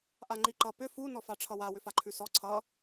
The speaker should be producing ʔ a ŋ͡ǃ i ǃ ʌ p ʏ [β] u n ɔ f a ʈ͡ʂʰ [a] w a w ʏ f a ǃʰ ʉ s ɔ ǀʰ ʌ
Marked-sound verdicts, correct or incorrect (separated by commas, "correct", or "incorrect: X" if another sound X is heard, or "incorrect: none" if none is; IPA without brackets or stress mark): incorrect: f, incorrect: ʌ